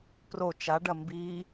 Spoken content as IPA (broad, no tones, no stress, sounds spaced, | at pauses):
p r o t͡ʃ a ɖ ɐ m b i